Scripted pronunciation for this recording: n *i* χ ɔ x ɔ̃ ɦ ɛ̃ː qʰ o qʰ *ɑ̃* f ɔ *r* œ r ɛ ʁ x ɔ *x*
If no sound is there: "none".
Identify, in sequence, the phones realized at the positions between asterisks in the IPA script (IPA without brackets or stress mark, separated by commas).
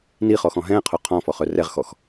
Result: i, ɔ̃, χ, x